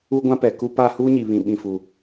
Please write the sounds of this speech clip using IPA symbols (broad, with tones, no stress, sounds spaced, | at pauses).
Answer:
u˦ ɡʷ ã˦ p ɛ˨ k u˦ p a˦˨ h uː˦ ɲ i˨ β ĩ˨ ɓ ĩ˨ f u˨